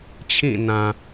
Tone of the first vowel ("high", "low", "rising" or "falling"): falling